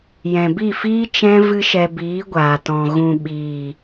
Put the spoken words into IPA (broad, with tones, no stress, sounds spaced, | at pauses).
j ɛ̃˨ b i˦˨ f iː˦ t͡ʃ ɛ̃˦ v ɨ˦ ʃ ɛ˧ b iː˨˦ ɡʷ aː˨ t ɔ̃˨ ɣ ũ˨ ɓ iː˨